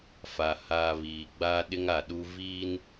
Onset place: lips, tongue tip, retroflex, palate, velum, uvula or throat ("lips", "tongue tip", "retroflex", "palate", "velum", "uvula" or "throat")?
lips